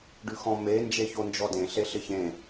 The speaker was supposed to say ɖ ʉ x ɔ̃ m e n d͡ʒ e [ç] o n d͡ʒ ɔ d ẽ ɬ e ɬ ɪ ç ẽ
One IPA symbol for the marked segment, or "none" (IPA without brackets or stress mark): ç